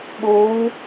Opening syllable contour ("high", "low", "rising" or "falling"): rising